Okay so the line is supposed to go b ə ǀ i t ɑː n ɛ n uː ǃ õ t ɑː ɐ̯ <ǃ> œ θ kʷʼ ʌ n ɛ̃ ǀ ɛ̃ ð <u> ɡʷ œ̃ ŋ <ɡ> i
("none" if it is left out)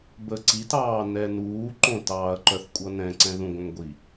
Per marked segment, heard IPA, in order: ǃ, ũ, ɡʷ

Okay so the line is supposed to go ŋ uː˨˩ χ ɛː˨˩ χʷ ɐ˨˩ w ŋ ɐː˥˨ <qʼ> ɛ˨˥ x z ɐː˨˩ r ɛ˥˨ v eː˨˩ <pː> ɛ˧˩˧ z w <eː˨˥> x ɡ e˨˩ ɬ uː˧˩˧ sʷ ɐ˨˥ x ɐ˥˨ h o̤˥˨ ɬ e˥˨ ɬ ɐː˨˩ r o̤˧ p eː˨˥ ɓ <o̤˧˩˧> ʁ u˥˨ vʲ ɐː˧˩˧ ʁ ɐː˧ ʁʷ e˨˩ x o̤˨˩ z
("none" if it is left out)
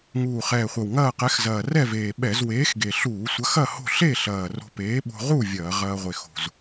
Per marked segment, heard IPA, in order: q, ɓ, eː˨˥, o̤˧

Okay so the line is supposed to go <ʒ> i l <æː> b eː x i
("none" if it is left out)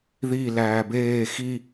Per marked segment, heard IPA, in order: ð, æː

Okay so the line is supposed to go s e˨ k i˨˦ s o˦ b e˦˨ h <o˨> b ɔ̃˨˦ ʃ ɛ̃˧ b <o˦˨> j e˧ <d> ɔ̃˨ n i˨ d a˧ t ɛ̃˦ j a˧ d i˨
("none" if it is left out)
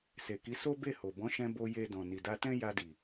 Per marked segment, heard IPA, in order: o˨, o˧, d

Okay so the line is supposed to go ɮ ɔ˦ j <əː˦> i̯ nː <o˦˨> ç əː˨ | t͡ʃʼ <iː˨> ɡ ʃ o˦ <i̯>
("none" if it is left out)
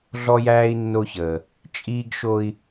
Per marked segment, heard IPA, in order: æː˦, o˦, iː˦, i̯

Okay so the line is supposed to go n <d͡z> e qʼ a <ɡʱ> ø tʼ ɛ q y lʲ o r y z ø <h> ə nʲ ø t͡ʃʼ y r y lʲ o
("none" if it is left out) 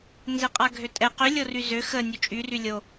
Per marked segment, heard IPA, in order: z, ɡʱ, x

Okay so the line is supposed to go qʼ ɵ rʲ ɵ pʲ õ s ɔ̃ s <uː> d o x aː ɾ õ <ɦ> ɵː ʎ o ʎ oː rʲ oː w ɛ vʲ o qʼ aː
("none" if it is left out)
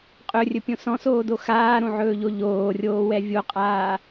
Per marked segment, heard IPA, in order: oː, ʕ

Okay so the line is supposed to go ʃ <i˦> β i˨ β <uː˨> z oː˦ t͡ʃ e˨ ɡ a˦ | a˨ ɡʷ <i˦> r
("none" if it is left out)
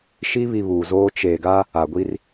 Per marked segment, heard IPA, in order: i˦, uː˨, i˦

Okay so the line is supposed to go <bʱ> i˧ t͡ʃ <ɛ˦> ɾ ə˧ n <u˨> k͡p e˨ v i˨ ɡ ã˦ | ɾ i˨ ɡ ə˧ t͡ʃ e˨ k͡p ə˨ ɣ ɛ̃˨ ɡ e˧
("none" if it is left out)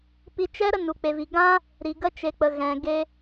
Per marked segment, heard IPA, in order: p, ɛ˦, u˨

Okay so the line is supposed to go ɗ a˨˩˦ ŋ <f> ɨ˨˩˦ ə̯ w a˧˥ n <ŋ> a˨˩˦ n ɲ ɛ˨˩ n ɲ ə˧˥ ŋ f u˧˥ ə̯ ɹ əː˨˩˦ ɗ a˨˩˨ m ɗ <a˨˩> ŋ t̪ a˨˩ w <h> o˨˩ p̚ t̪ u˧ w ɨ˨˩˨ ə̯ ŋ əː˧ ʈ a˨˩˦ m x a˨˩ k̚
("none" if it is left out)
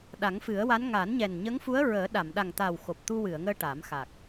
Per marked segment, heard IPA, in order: f, ŋ, a˨˩, x

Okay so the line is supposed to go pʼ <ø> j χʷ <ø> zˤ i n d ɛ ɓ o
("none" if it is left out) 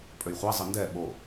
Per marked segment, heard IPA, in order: ø, ɛ

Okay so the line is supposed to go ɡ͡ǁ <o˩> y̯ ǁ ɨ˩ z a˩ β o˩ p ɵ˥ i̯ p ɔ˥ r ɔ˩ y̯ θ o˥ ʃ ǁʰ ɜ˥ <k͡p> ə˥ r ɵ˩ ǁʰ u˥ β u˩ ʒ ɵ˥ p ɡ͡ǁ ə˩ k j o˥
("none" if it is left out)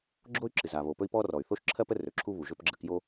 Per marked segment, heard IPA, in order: o˥, p

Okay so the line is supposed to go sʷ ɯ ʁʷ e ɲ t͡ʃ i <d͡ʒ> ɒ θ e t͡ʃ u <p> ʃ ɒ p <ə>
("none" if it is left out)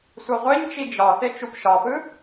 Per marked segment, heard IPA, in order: d͡ʒ, p, ɯ

